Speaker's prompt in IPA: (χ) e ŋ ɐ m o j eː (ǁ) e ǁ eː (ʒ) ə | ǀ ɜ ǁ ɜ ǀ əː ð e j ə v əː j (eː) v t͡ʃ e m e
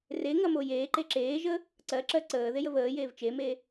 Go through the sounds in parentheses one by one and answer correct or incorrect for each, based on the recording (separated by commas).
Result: incorrect, incorrect, correct, correct